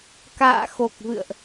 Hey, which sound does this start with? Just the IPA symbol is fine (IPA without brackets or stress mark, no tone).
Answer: k